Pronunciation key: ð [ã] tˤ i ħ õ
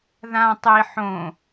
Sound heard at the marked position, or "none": ã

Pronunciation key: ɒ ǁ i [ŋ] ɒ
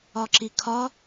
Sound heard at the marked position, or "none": kʰ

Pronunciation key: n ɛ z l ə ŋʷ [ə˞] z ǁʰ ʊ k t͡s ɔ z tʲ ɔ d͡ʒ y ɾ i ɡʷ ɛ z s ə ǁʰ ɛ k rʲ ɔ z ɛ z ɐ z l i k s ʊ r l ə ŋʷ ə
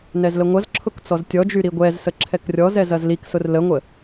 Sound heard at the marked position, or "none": ɐ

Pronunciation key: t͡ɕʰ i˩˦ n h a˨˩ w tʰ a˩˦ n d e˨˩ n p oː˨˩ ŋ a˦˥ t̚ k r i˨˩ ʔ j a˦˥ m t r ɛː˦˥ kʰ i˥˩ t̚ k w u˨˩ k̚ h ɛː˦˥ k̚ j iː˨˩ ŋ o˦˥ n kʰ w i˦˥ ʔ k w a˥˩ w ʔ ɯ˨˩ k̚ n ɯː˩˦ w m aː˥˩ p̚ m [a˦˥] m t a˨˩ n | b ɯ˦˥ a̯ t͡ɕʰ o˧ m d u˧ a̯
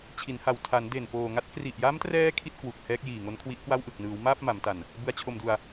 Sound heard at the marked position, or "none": a˩˦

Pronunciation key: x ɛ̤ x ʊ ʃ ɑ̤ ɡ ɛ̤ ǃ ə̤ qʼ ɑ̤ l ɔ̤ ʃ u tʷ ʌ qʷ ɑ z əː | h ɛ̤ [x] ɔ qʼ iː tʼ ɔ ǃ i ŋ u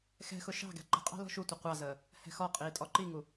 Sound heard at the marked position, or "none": x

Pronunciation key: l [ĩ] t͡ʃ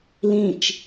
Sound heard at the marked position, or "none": ĩ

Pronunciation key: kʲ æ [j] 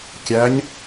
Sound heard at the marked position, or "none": ɲ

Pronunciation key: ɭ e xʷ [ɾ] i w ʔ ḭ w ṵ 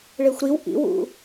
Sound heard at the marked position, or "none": ɾ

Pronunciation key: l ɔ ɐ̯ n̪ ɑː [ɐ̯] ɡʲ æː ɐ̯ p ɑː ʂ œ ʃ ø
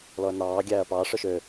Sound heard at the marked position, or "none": none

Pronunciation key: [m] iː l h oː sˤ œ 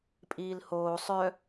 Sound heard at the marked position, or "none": pʼ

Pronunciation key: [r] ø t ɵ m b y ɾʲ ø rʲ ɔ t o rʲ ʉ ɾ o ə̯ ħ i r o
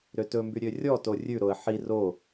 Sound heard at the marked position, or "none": ɾ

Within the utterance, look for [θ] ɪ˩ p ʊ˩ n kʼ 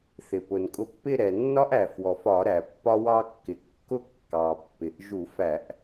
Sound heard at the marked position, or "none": θ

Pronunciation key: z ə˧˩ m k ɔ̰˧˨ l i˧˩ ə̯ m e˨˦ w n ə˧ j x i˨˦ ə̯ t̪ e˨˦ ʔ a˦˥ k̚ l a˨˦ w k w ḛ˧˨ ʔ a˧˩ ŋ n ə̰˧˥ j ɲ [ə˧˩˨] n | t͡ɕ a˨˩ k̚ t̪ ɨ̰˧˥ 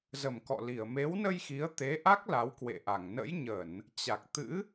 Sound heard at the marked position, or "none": ə˧˩˨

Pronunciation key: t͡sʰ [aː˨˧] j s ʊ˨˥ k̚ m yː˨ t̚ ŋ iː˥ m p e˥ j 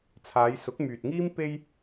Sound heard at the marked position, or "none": aː˨˧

